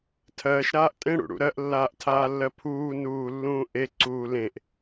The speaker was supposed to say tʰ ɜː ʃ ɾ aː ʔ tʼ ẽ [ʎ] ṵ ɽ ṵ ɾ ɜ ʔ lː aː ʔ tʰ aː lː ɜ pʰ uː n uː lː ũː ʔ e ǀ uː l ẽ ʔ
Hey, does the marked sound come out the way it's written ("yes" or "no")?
no